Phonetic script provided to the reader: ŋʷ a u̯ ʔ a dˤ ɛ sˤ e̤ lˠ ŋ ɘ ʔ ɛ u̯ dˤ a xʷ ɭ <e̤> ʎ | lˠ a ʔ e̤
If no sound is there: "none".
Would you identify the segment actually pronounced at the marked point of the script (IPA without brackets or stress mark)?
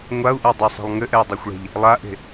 e̤